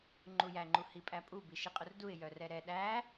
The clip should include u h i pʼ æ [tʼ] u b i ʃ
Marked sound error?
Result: yes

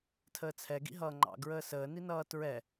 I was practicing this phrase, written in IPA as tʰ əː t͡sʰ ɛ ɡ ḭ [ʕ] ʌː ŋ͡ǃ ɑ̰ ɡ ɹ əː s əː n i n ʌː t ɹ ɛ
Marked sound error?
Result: yes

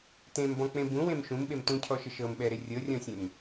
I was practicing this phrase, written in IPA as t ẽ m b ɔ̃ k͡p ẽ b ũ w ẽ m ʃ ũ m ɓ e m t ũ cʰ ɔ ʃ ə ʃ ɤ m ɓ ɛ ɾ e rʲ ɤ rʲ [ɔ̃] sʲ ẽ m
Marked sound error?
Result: no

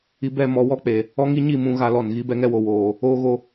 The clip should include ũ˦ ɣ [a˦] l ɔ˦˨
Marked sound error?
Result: no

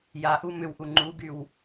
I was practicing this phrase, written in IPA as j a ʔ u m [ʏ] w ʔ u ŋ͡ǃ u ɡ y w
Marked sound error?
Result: no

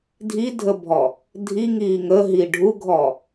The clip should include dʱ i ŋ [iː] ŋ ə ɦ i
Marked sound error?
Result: no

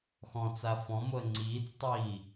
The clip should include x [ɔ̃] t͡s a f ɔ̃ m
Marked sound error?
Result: no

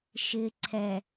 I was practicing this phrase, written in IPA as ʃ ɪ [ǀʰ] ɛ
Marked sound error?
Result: no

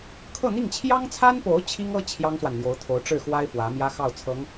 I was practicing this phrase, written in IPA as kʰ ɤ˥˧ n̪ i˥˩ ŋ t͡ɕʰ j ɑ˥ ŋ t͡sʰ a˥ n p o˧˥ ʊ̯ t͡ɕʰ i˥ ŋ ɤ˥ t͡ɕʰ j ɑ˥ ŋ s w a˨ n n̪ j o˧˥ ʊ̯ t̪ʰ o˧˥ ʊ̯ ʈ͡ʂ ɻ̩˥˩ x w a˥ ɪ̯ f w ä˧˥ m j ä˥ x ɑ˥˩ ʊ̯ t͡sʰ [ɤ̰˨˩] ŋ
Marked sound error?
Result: yes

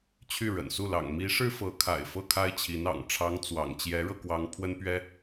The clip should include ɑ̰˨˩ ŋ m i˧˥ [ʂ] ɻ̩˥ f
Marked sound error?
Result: no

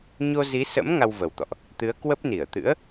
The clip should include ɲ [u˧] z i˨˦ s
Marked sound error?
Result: yes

